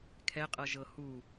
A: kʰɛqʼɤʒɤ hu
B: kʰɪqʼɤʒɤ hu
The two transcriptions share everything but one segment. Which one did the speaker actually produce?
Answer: A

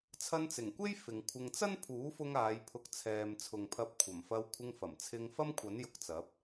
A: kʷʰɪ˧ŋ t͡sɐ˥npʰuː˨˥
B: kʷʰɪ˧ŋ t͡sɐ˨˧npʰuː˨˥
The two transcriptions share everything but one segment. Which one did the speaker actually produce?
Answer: A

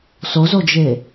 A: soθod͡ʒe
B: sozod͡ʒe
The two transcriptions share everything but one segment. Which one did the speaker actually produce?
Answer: B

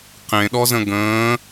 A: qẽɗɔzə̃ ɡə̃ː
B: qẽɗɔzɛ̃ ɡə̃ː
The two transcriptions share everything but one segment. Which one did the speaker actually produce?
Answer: A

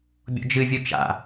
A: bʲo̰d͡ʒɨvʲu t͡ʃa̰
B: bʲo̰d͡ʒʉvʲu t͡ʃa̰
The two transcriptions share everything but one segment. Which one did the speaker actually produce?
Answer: A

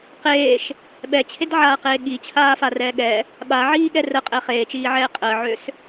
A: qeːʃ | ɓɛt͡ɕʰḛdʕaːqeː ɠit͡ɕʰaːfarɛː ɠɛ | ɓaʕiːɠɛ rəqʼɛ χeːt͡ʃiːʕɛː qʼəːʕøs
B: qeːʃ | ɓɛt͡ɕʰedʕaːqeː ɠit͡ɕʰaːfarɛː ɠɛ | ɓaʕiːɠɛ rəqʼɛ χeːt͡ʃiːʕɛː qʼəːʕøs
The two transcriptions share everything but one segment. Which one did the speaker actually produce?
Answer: B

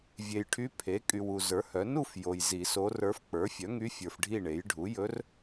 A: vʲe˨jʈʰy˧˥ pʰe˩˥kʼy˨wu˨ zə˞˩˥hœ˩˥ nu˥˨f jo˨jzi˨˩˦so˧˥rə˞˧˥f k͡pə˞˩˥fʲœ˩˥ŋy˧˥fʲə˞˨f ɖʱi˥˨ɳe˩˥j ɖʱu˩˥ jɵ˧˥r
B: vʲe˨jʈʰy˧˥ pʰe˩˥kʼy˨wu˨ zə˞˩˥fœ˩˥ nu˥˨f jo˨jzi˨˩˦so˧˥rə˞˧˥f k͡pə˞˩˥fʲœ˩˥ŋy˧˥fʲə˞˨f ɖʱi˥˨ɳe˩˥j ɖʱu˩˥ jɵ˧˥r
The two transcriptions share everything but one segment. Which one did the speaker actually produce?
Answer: A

